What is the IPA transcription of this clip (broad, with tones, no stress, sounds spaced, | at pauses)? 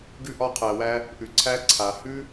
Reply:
ɡ ʉ˧ ʔ ɒ˧ qʰ æ˨ w æ˧ | ʔ ʉ˨ ǀʰ æ˧ ǀʰ a˨ h ʉ˦